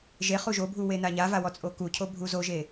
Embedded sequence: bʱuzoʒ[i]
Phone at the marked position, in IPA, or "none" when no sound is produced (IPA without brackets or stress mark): e